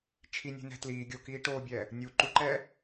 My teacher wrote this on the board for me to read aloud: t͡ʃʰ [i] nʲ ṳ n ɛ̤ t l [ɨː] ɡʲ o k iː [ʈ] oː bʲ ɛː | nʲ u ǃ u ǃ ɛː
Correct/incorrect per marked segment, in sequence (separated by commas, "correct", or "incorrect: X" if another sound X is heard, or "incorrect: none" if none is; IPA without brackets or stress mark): correct, incorrect: iː, correct